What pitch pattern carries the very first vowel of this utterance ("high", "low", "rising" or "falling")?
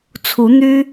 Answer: rising